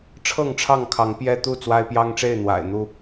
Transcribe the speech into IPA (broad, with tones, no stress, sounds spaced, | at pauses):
ʈ͡ʂʰ ɤ˥˨ ŋ ʈ͡ʂʰ ɑ˥˨ ŋ kʰ ɑ˨˦ ŋ p j ɛ˦ t̪ u˥˨ t͡s w a˦ ɪ̯ p j ɑ˦ ŋ ʈ͡ʂ e˥˨ ɪ̯ n̪ w a̰˨˩ ɪ̯ n̪ u˥˨